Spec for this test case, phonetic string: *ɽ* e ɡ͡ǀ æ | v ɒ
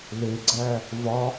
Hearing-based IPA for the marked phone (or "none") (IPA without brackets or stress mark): l